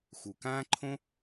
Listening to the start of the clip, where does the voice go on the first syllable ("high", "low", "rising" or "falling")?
low